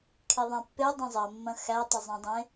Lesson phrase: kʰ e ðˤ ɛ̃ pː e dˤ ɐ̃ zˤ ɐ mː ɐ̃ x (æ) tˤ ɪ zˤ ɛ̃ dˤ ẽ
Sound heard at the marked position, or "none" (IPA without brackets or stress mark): æ